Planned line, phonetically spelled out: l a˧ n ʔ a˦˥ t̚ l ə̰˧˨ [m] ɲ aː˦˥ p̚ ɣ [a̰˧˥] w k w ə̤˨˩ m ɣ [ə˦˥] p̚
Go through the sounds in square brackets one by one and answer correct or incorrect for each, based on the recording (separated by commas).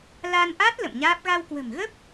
correct, incorrect, correct